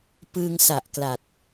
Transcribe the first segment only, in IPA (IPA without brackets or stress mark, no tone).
p